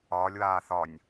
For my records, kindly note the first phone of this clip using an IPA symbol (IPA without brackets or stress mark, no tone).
ɒː